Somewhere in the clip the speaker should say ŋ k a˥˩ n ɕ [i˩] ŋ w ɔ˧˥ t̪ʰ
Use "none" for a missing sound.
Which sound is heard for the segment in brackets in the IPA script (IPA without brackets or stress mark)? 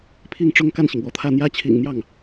i˩